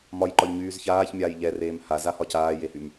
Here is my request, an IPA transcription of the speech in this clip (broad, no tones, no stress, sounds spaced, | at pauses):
m ɒ j ǃ ɒ ʎ ɲ yː z ç aː ç mʲ aː j ʎ ɛ r eː m h a z a h ɒ c aː j e h y m